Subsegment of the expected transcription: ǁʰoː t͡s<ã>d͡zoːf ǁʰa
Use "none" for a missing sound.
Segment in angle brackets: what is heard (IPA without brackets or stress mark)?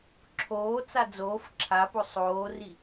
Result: a